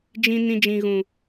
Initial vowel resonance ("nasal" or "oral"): nasal